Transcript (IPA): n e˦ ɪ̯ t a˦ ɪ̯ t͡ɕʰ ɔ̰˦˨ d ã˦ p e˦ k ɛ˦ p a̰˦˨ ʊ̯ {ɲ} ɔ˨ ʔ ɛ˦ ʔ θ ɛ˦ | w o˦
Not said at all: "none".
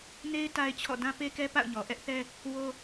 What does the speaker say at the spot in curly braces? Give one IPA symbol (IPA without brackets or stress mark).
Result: ɲ